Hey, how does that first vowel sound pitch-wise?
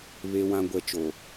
low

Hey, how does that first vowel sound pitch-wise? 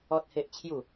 high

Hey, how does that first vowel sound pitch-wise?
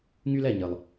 high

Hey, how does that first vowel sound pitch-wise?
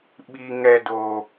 high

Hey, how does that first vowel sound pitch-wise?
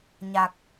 low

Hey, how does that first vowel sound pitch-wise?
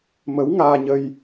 rising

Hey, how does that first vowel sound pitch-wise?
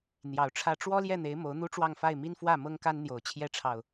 low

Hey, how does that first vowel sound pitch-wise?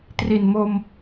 low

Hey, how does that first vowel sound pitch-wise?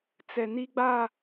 low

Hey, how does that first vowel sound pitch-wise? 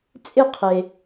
falling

